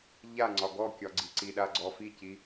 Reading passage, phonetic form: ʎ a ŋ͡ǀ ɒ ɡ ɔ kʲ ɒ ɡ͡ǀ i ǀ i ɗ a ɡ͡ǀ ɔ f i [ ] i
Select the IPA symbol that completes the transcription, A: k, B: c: B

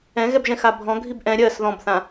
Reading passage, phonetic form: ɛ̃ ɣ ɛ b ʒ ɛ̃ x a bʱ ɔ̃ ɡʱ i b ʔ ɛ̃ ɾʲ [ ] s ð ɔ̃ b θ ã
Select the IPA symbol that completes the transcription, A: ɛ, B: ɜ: B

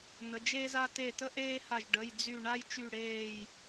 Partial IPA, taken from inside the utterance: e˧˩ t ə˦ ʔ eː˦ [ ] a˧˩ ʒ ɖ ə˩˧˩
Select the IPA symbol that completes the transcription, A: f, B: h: B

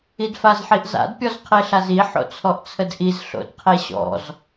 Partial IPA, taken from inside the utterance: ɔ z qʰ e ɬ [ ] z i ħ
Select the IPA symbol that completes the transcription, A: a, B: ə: A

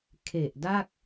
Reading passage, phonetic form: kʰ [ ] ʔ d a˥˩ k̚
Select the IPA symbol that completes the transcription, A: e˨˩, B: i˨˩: A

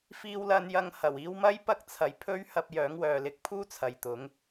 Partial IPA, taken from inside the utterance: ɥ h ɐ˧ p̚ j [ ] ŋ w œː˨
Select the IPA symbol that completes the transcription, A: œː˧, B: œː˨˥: B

